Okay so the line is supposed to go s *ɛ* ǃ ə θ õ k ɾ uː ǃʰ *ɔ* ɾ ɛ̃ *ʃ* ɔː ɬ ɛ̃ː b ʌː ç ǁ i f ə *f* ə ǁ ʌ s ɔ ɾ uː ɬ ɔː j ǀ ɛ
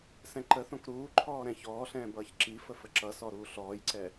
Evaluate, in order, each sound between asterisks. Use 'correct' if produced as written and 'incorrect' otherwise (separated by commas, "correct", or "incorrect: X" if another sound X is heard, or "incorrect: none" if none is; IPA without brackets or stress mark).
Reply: incorrect: ɛ̃, incorrect: ɔː, incorrect: ç, correct